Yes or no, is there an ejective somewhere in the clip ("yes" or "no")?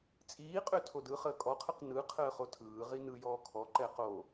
yes